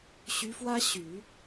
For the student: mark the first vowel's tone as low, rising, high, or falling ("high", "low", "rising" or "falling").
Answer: rising